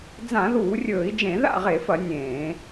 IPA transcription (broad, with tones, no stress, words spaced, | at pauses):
d͡zã˧˩˧ðuː˧˩˧rʲɵː˧˩˧i̯d͡ʒẽ˧˩˧ ða̰˥˨ʁe˧˩˧fɐ˧˩˧ nʲẽː˧˩˧